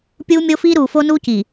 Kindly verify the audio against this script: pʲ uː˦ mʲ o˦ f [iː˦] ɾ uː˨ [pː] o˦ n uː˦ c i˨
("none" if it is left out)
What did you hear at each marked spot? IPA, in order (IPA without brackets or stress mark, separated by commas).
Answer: iː˦, f